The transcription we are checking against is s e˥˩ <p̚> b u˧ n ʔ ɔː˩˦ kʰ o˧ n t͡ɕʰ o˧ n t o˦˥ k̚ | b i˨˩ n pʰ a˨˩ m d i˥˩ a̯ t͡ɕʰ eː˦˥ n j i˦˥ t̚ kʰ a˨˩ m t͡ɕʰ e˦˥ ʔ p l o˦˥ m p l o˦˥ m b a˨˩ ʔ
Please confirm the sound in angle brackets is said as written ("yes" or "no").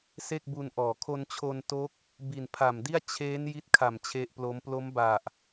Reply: no